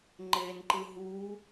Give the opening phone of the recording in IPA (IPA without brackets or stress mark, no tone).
ŋ͡ǃ